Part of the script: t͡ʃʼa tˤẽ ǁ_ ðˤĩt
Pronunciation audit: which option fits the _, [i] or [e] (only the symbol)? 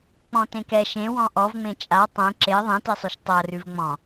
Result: e